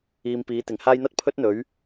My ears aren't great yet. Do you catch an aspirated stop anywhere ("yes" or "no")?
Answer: yes